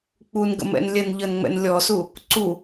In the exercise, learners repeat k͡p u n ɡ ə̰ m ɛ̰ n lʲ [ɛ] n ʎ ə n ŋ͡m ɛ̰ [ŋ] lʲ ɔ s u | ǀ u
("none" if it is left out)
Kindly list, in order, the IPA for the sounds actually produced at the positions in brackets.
ɛ, n

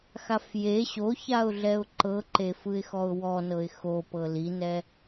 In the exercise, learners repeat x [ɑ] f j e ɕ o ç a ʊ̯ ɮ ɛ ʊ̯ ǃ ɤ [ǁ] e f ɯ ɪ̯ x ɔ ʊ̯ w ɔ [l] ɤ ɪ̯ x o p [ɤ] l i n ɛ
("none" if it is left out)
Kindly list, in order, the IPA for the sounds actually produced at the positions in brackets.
a, ǃ, n, ɤ

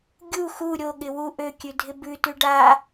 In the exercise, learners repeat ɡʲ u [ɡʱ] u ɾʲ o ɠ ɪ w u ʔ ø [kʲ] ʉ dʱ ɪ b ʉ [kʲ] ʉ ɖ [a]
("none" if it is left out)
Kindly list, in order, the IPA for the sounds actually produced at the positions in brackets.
x, kʲ, t, a

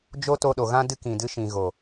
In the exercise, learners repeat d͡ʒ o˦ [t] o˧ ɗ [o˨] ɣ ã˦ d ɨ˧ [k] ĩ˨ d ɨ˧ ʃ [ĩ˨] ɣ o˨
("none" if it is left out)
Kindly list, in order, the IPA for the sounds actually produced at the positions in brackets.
t, o˨, k, ĩ˨

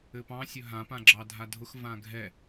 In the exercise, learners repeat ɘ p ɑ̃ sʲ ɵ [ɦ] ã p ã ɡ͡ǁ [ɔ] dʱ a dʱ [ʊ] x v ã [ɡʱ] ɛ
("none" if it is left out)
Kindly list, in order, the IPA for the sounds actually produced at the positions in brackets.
ɦ, ɑ, ʊ, ɡʱ

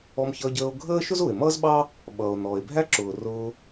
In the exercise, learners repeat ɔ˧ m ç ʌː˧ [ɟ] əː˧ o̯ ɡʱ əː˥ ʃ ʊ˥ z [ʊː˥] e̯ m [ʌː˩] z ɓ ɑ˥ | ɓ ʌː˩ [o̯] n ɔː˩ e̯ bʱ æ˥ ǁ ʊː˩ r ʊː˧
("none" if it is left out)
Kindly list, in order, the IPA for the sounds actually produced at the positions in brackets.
ɟ, ʊː˩, ʌː˥, o̯

